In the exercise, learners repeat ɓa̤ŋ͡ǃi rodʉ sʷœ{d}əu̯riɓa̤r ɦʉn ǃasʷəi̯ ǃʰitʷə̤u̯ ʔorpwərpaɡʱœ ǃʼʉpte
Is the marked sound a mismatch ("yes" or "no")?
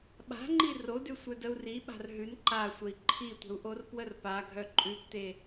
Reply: no